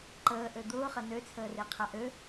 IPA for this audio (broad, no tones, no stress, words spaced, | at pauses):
ǃəːʔø d̪ʊːχɐ nøt͡sʰəːre qʰaʔø